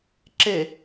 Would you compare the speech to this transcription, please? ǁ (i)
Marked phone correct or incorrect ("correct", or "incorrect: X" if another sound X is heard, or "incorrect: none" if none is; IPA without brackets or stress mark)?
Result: incorrect: e